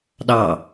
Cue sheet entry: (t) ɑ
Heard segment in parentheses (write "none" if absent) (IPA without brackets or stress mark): ɗ